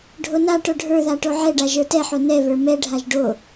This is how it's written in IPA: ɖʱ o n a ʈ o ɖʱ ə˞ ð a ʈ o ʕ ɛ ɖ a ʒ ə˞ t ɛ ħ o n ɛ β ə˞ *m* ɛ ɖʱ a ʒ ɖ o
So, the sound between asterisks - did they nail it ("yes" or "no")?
yes